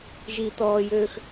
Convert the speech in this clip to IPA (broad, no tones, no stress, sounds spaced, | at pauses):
ʒ i t̪ ɔː j øː x